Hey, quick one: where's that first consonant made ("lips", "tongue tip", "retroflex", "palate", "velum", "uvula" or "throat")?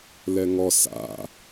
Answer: tongue tip